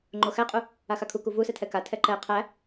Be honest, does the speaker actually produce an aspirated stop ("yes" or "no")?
yes